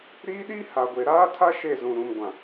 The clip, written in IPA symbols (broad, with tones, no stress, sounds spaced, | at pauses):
ɾ iː˦ ɗ i˦ h a˨ ɡʷ e˨ ɾ aː˦ tʰ a˦ ʃ e˦˨ z ũ˨ ɾ ũ˨ m ɡʷ ã˨